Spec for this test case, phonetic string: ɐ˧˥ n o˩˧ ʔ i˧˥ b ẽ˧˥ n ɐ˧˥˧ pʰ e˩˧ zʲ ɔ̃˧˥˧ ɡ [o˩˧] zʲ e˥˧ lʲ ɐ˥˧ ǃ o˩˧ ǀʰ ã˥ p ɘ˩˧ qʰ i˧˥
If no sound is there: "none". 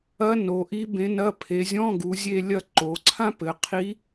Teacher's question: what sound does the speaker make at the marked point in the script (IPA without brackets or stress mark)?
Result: u˩˧